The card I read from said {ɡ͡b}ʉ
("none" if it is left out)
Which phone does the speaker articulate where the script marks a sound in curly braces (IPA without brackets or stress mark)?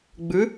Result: ɡ͡b